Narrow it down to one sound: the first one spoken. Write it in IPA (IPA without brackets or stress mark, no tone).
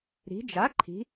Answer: ɾ